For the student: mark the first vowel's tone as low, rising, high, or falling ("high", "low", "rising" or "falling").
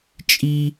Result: high